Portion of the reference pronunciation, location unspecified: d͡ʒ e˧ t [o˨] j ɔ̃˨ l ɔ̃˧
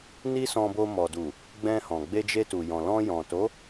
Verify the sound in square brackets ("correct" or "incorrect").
incorrect